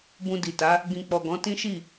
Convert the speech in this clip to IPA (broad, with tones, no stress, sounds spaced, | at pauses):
b ũ˧ d i˨ t a˨˦ | ɡ ĩ˧ k͡p ɔ˨ ɡ ɔ̃˨˦ t ĩ˦ ʃ i˦˨